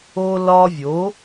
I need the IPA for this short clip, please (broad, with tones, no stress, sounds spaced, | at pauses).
o˧ l ɒ˧ vʲ o˩˥